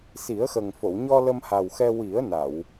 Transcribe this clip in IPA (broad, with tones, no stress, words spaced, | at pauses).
si˨˩˦ə̯xə˨˩ŋ fo˨˩˨wɲɔ˧ lə˧mha˨˩wxɛ˧ wi˨˩˦ə̯na˨˩˨w